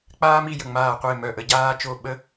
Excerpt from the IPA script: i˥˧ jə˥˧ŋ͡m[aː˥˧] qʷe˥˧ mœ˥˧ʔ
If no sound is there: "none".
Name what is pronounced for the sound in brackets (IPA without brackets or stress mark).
aː˥˧